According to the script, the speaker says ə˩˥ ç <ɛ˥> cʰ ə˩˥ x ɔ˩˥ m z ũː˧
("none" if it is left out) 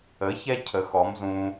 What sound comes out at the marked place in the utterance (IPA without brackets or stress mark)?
ɛ˥